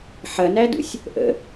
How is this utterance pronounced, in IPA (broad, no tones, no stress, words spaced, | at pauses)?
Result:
ħɐnædṵsʲ | ʔə̰